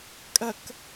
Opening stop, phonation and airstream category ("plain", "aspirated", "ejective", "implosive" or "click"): ejective